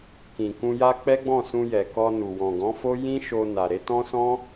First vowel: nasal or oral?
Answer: nasal